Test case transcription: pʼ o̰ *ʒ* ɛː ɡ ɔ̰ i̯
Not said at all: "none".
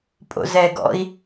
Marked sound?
z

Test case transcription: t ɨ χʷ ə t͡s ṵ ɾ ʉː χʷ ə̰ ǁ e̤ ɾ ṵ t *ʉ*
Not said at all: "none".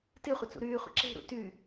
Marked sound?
ʉ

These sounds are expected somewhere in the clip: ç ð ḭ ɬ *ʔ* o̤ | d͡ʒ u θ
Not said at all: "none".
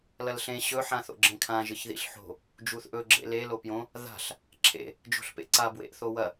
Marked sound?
ħ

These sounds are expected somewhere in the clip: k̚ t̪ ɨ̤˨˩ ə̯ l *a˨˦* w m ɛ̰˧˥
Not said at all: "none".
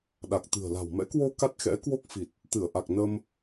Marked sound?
a̤˨˩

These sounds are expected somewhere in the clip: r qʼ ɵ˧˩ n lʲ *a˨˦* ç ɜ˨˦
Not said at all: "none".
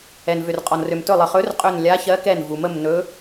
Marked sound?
a˨˦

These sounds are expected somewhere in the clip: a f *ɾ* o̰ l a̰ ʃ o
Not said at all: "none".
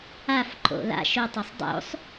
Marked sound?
ǃ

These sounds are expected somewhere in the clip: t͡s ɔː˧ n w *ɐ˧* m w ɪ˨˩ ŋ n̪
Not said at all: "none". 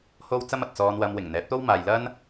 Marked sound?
ɐ˧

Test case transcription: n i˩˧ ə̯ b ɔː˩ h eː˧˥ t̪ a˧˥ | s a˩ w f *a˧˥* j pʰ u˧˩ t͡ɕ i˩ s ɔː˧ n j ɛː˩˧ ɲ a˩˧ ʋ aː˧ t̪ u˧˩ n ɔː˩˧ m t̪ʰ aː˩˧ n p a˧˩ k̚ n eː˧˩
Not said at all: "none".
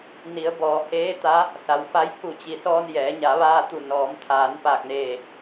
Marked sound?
a˧˥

